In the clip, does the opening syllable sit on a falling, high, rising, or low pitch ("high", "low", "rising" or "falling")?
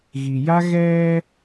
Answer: low